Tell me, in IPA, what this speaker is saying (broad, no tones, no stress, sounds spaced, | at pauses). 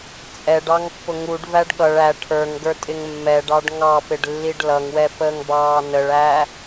t͡sʼ ɛ ɖ ɑ ŋ pː ʊ ŋ u ɖ v æ ɖ ɠ ʌ ɭ æ ʈʰ ə˞ ŋ ɡ ə˞ tʼ ɪ ŋ mː ɛ ɖ ɑ ɖ ŋ ɑ p ɪ ɖ lː i ɖ l ʌ ŋ w ɛ p əː ŋ b ɑː n ə ɭ æ